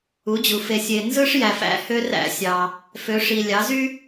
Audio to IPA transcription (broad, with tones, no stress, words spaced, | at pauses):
u˩˧d͡ʑu˩ fe˩sʲe˩ nzɯ˦ʂjæ˩fæ̰˦ hø˦ræ̰˦sʲɑ˩ | fø˩˧ʂi˩ lʲɑ˩˧zy˦